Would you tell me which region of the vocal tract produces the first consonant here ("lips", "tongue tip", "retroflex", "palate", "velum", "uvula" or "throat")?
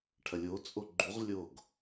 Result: retroflex